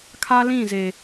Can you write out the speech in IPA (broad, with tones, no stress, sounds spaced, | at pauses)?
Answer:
kʰ a˦ l ĩ˦˨ z e˨